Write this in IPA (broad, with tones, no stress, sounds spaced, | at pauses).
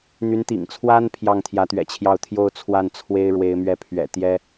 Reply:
n̪ y˧˥ n t̪ ḭ˨˩ ŋ t͡sʰ w a˥ n pʰ j ɑ˥˩ ŋ t̪ʰ j ä˧˥ t̪ ɥ ɛ̰˨˩ t͡ɕʰ j ɑ˥˧ ʊ̯ t̪ʰ j o˥˧ ʊ̯ t͡sʰ w a˥˩ n t͡sʰ w e˥ ɪ̯ ɻ w e˧˥ ɪ̯ m ɥ ɛ˥˩ pʰ ɥ ɛ̰˨˩ t̪ j ɛ˥